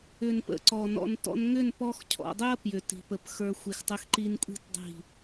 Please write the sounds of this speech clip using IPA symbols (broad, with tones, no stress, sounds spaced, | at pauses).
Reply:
ʏ˨ n p ə̰˨˦ ǀ ɔ˨ n ɔ̰˧ n t ɔ̰˦ n ŋ ʏ˦˨ n p ɔ˧ x cʰ ɔ̰˨ dˤ ʏ˦ ɐ̯ p j ʏ˨ t i̤˨ p ə˨ p x ə˞˧ xʷ i˨ x tˤ ʏ˧ x ǃ i˧ n kʷʼ i̤˦˨ t dˤ i̤˦˨